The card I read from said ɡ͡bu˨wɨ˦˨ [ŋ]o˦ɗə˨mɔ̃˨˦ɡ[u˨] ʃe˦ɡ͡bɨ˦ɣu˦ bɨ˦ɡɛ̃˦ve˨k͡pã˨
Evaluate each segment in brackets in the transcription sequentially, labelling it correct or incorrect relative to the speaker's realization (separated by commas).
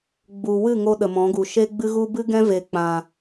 correct, correct